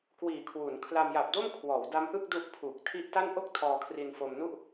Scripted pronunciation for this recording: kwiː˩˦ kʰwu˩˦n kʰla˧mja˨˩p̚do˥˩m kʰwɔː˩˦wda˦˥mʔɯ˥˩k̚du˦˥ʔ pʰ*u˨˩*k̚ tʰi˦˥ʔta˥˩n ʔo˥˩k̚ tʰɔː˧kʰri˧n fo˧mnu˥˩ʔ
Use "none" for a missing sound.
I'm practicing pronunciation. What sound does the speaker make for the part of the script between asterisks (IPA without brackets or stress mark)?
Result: u˨˩